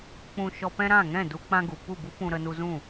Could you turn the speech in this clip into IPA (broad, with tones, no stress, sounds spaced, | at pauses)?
k͡p ũ˧ ʃ ɔ˧ p ɛ̃˦ ɾ ã˦˨ ŋ ɛ̃˦˨ d u˦ k͡p ã˦ ɡ u˨ p u˦˨ b u˦ p ũ˧ ɾ ə˧ n u˧ z ũ˦˨